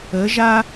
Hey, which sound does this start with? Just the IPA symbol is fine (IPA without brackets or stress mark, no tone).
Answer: ə